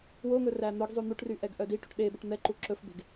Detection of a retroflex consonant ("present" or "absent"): present